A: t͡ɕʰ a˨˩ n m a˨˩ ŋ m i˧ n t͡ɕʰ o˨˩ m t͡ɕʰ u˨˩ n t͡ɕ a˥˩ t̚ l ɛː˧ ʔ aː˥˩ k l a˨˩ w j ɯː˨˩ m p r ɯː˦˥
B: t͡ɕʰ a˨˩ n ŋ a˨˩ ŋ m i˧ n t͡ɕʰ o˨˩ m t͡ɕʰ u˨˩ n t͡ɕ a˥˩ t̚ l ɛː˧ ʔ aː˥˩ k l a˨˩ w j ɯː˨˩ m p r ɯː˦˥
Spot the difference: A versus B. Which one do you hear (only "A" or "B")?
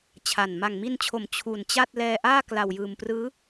A